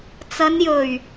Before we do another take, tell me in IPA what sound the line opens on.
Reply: t͡s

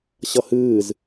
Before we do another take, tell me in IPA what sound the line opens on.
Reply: ɕ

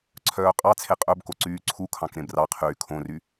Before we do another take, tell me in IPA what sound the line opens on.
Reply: ǀʰ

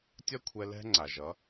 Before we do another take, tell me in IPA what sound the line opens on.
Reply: tʲ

